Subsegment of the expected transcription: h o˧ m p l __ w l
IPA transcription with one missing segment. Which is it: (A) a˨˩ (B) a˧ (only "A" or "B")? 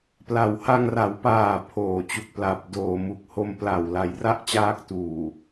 A